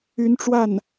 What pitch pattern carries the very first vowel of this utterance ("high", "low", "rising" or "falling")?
rising